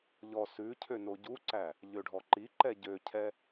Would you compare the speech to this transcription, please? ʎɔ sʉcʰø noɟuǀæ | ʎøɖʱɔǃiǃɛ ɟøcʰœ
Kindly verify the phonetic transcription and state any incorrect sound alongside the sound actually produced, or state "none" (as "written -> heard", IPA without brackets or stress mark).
œ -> ɛ